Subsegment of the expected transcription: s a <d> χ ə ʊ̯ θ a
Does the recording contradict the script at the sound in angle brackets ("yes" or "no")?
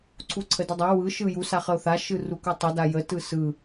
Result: yes